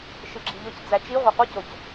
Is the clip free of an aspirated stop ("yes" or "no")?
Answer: yes